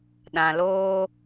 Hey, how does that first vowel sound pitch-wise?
low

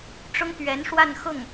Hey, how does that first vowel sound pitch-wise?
high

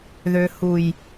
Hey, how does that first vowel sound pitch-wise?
low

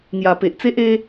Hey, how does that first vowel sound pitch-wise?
low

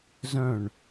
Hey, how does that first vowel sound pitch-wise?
falling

